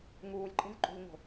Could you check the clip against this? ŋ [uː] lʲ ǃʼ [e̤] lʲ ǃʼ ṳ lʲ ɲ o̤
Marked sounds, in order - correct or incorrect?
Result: correct, correct

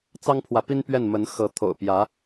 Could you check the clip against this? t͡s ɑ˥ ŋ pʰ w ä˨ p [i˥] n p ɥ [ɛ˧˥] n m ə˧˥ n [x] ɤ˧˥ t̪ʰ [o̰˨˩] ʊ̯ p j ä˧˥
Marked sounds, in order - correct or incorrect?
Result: correct, incorrect, correct, correct

